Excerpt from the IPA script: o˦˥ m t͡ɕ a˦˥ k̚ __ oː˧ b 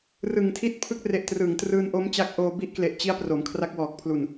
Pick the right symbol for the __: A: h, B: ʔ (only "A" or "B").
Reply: B